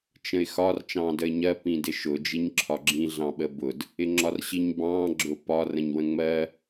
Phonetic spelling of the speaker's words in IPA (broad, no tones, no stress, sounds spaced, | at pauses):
t͡ʃ ə̃ ɪ̯ x ɒ r t͡ʃ ɑ̃ː d ə ɪ̯ ɲ ɜ p ĩ d ɪ ʃ ʊ d͡ʒ i ɲ ǁʰ ɒ ɡ͡ǁ ĩ ɮ ɑ̃ ɓ ə b ʊ d | ɪ ŋ͡ǁ ɒ r ɕ i ɲ b ɑ̃ː ɡ͡ǁ ʊ p ɒ r ə̃ ɲ w ə̃ ŋ͡m ɜ